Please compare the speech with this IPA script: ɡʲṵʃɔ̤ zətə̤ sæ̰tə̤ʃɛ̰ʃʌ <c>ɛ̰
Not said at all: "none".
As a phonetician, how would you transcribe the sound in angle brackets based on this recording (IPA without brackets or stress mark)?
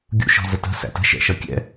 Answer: kʲ